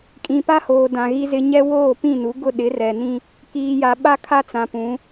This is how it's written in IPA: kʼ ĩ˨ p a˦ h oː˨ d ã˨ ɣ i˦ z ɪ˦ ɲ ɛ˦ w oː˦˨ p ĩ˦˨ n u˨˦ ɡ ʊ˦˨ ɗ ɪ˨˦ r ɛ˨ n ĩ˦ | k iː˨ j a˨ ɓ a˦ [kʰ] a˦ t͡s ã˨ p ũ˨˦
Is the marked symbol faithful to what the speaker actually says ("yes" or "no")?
yes